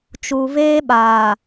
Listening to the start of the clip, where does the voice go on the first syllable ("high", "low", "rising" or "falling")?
low